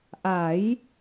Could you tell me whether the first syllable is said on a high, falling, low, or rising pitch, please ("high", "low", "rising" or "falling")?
rising